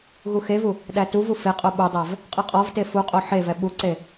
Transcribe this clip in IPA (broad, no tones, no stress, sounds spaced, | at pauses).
ɣ u x e v u | ɗ æ t u v u f e qʼ o ɓ u dˤ æ v | qʼ ɨ qʼ ɔ v t e f u qʼ o ħ e v ɛ ɓ u ǀ e